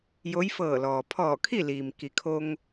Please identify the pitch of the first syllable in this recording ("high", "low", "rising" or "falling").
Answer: rising